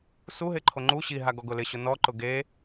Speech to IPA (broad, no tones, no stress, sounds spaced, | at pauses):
s u ɦ ɪ ǃʰ o ŋ͡ǃ u ɕ i ɦ a ɡ ɔ ɡ ʊ l ɪ ɕ ʊ n ɔ ǃ ʊ ɡ e